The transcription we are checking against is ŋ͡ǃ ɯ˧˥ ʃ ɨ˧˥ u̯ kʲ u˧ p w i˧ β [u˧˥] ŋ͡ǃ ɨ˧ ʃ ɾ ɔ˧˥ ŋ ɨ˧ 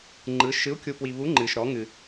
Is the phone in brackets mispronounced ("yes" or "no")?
no